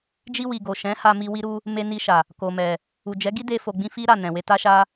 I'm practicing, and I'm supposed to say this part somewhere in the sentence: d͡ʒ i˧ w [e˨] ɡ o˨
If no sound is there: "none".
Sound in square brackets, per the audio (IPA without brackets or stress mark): i˨